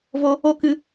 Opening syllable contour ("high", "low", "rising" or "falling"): high